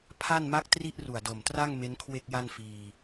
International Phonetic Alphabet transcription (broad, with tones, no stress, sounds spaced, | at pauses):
pʰ a˥˩ n m a˦˥ k̚ t r i˥˩ ʔ r u˨˩ a̯ d o˨˩ m t r a˥˩ ŋ m e˦˥ n kʰ w e˥˩ k̚ j a˥˩ n f iː˧